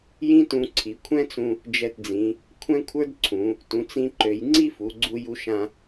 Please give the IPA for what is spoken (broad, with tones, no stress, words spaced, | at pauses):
jĩ˥tũ˧ǀʰi˩˧ kʷʰɛ̃˥t͡sũ˧ | d͡ʒɛ˧td͡zĩ˩˧ | kʷʰɛ̃˥kʷʰə˞˥dǀʰũ˩˧ | tũ˩˧t͡sĩ˧ǃø˩˧jŋ͡ǀi˥ fu˩˧ɡ͡ǀu˧ju˧ʃã˧